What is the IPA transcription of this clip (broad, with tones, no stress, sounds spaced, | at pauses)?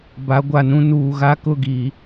b a˨˦ ɡʷ a˨ n ũ˦ n uː˨ ɣ a˦ k ʊ˦˨ ɡ i˨